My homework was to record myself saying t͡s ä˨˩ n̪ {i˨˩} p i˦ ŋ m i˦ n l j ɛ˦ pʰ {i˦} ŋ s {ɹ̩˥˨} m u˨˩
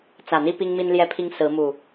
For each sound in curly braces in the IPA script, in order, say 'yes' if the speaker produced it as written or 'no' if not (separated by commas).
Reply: no, yes, no